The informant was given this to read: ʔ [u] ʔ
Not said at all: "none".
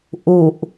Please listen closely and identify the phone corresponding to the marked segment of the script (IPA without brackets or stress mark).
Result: u